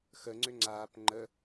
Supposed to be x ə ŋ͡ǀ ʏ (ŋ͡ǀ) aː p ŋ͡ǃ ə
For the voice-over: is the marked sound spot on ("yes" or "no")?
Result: yes